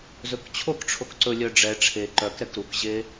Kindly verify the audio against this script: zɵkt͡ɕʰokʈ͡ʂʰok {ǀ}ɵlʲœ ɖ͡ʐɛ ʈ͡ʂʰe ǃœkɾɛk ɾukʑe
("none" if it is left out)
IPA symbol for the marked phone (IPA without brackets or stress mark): ǀ